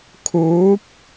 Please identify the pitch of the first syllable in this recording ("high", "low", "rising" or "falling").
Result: rising